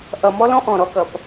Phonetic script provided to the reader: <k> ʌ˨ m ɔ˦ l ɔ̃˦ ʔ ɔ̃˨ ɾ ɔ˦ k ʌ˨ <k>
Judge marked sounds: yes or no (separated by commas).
no, no